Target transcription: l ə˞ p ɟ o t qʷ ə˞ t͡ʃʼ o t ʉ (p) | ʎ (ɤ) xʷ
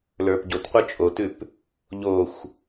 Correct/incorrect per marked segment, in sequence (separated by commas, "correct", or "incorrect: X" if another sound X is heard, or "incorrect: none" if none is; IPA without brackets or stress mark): correct, incorrect: o